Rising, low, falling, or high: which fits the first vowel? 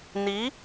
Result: rising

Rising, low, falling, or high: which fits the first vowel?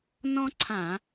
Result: high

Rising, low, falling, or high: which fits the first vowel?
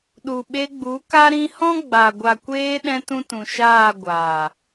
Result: low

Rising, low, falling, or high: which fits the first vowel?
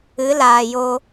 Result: rising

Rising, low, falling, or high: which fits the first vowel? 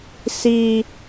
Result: low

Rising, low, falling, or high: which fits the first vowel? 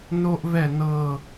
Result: high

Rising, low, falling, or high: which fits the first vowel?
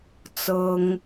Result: high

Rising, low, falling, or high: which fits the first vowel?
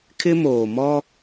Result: high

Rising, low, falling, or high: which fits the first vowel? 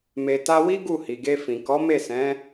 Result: low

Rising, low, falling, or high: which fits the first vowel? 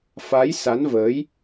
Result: rising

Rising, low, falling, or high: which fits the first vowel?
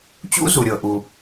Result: high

